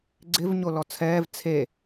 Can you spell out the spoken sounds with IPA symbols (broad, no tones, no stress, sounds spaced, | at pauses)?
ɡ͡ǀ ɪ v ɲ o l ɔ t͡sʰ ɛː v t͡sʰ e